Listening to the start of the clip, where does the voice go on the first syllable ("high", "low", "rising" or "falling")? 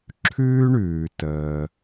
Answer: high